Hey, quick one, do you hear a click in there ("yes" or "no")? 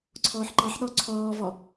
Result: yes